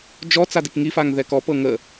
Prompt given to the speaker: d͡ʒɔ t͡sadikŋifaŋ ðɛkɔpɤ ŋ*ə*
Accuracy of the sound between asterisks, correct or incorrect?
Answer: correct